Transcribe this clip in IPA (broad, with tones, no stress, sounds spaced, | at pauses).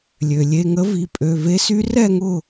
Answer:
lʲ ø˩ lʲ e˩˧˩ ŋ ə˧˥ v i˩˧˩ pʼ ø˩˧˩ v e˧˥ s y˧˥ r ɛ˦˨ ŋ ʊ˦˨